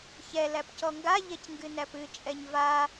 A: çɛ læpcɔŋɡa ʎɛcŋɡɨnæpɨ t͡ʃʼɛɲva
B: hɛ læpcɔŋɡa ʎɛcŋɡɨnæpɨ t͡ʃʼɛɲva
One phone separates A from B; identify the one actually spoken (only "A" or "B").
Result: A